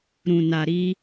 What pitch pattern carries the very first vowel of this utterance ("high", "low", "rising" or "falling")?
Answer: low